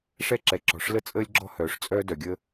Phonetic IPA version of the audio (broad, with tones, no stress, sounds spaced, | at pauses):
ʂ ɛ˥ ǁ ɛ˩ ǁ ɔ̤˩ ʂ l ə˥ t͡sʼ əː˥ lʲ ɡ͡ǁ ɔ̤˥ h œː˩ ʂ t͡sʼ œː˥ d œ˩ ɡʲ əː˥